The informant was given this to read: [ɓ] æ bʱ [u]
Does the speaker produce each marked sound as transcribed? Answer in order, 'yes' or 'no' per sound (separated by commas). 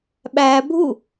yes, yes